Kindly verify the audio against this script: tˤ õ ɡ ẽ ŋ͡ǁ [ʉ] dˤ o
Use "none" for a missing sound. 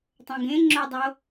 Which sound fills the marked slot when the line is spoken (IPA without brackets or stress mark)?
ʊ